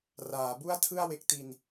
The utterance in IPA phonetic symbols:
r aː˩˦ b u˥˩ a̯ tʰ ɯ˥˩ a̯ w e˦˥ k̚ t i˧ n

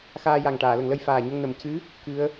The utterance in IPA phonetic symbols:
x aː˧ j a˨˩ ŋ ʈ aː˨˩˨ l ə˨˩˨ ŋ l ə˧ j f aː˨˩ ɲ ə˧ ŋ n ə˨˩˨ m c ɨ˧˥ | k ɨ˧˥ ə̯

